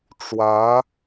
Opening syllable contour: rising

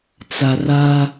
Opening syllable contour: low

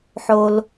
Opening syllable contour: low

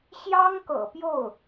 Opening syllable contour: high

